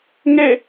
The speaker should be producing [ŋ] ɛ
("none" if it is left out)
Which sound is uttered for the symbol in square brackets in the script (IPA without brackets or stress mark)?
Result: ŋ